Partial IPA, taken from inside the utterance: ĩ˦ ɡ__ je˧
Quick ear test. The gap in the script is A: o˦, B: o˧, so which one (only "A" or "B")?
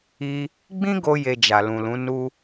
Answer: A